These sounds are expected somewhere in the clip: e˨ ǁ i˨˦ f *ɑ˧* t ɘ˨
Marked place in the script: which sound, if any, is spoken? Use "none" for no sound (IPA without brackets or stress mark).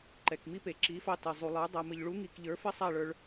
ɑ˧